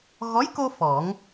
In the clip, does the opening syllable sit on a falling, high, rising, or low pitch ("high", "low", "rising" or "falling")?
rising